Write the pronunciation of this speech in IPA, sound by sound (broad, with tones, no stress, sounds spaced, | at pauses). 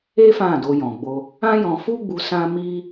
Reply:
e˦ f ã˦˨ d o˧ j ɔ̃˨ ɡ͡b o˧ | ã˦ j ɔ̃˧ f u˦ ɡ͡b u˧ s ã˦ m i˦